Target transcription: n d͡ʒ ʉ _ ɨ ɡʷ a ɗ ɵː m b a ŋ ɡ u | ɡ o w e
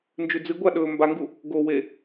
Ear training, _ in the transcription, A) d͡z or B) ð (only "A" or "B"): A